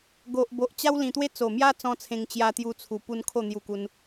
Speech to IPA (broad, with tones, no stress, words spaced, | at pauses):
ɡo˨ʔ bo˨ʔt͡ɕa˦w lĩ˨˩t̪we˦ t͡so˨˩mja˦ t͡sɔ̃˦t͡sʰẽ˧ŋ t͡ɕja˧t̪ju˧t͡sʰu˨˩pu˧n kʰo˥˧n̪ju˧ku˧n